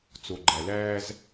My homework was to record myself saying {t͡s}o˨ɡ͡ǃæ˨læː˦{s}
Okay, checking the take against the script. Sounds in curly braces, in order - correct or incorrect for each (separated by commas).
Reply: correct, incorrect